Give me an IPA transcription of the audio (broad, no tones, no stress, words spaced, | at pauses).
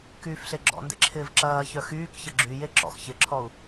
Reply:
kyːfɬeɡ͡ǁɔ̰ndḛ ǁʰɪːvǁɐːçœ xyːkçə ɡ͡ǁyje ǁɔ̰x çɪǁʰɔu̯